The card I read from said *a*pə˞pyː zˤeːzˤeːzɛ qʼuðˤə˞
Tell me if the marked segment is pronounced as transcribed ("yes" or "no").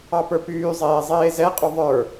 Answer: no